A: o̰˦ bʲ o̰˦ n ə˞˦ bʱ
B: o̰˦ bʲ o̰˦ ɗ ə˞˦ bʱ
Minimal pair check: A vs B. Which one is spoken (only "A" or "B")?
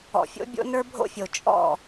A